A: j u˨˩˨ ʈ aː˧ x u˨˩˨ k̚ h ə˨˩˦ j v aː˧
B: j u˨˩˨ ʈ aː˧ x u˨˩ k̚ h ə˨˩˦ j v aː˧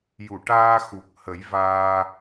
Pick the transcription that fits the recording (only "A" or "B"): B